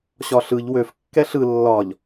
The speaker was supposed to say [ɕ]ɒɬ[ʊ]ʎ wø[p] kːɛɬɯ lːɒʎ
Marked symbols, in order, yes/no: yes, no, no

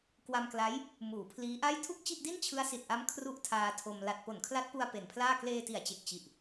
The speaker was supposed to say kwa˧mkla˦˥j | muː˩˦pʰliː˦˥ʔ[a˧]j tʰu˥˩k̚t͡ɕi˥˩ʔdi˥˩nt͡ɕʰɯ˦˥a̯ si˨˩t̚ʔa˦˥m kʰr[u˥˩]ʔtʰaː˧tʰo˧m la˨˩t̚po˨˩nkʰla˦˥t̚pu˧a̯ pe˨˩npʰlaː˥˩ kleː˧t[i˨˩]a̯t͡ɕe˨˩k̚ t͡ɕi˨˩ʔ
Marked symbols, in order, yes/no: no, yes, yes

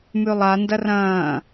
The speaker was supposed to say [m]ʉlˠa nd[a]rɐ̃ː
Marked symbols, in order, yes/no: yes, no

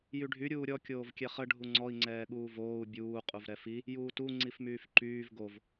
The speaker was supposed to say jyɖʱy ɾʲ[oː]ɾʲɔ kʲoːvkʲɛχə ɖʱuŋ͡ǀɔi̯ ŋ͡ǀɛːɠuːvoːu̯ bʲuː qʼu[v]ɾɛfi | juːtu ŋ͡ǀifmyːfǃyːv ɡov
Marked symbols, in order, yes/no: no, yes

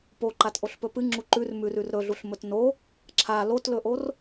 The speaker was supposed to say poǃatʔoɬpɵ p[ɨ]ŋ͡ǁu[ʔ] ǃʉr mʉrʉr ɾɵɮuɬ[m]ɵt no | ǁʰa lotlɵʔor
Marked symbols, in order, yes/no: yes, no, yes

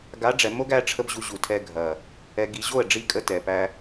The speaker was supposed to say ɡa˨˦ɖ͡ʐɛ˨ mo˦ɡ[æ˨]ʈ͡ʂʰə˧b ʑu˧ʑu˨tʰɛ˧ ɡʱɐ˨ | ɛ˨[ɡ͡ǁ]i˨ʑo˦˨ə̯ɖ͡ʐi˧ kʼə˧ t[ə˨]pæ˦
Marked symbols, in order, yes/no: no, no, no

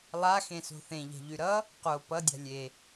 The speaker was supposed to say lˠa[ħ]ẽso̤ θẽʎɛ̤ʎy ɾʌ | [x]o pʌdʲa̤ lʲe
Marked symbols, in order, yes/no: no, no

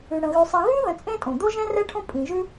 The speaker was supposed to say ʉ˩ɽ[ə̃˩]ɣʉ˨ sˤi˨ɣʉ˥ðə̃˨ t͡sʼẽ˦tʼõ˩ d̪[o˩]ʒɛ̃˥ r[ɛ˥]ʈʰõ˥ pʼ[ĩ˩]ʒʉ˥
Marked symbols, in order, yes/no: yes, no, yes, no

